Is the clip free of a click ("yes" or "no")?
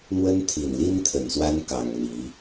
yes